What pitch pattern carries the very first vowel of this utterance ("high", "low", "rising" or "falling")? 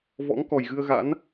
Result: rising